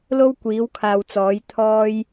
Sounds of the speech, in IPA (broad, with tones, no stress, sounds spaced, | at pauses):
l o˥ w kʷ iː˨˥ w kʰ aː˨ w t͡s ɔː˨˥ j t̪ʰ ɔː˧ j